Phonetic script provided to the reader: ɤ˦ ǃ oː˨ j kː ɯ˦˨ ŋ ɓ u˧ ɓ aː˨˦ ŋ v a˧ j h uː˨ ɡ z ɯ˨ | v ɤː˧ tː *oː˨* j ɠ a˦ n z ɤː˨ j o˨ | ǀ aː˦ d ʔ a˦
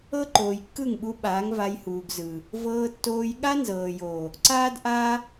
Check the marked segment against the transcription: incorrect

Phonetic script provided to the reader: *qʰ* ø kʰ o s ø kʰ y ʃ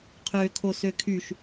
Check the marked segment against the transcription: correct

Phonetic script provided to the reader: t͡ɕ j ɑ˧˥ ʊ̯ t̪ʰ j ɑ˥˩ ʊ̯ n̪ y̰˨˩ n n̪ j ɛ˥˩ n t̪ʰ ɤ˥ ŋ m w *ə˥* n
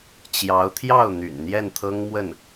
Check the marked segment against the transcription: incorrect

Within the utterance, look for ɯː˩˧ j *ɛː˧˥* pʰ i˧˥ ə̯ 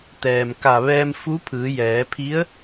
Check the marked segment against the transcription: incorrect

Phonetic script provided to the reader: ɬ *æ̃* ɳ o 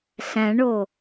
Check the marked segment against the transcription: correct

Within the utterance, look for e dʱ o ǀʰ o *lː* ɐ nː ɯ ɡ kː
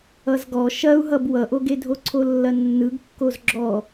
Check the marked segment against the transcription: correct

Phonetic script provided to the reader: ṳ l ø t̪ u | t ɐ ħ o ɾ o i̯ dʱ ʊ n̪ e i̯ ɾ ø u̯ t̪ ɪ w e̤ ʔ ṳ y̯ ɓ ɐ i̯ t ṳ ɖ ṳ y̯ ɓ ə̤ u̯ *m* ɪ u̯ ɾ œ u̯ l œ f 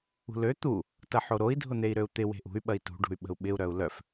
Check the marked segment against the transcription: incorrect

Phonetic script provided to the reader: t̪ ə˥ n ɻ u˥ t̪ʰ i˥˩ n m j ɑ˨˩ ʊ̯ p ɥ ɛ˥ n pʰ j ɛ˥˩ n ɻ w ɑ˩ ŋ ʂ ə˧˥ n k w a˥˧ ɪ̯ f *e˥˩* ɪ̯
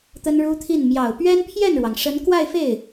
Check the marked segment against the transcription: correct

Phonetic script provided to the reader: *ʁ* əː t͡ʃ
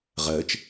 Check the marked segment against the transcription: correct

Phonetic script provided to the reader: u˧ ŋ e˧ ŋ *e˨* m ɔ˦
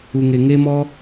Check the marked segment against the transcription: incorrect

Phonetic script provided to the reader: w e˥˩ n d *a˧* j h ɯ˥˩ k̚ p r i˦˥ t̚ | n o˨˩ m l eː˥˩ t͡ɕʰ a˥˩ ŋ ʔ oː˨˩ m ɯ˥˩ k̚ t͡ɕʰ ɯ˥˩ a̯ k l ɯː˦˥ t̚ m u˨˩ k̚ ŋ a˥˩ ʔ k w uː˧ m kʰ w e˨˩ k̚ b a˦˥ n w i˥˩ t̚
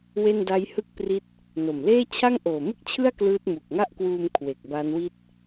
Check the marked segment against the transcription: incorrect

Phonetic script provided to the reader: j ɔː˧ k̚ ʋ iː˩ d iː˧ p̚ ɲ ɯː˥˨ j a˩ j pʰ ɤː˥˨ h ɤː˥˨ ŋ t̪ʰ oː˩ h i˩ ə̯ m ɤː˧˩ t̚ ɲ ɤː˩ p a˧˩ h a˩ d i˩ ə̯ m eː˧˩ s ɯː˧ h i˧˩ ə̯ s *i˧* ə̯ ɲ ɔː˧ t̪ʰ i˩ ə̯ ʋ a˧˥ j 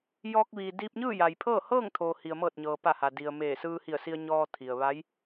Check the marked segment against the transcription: correct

